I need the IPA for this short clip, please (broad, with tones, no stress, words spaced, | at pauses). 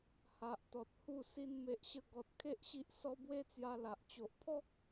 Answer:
ha˨ʔt̪ɔ˨t̚hu˥˧ si˧nme˨ʔɕə˧ɡɔ˨t̚ kʰe˦ʔɕi˦ʔsɔ˦ bwe˦t͡sja˧la˨ʔ t͡ɕo˨ʔpʰɔ˦k̚